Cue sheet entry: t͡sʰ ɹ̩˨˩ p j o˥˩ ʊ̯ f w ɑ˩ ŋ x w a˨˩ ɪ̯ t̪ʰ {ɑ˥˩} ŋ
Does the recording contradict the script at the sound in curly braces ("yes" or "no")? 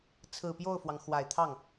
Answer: no